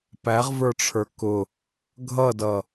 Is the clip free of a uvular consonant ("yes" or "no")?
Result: no